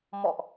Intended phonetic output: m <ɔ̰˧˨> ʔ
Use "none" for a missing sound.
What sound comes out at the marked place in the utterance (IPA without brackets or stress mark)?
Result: ɔ̰˧˨